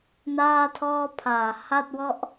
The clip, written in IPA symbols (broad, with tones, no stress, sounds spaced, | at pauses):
n aː˥˩ tʰ ɔː˥˩ pʰ aː˨˩ h a˥˩ t̚ w ɔ˥˩ ʔ